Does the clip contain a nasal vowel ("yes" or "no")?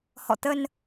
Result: no